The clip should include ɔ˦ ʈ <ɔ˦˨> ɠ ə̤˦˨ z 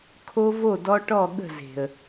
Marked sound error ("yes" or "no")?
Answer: no